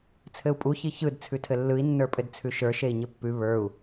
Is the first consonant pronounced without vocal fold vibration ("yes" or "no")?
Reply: yes